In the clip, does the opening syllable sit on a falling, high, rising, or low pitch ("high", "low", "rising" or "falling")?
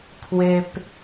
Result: low